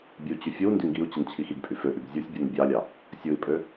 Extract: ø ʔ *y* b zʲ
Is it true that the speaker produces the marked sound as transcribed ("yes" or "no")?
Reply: yes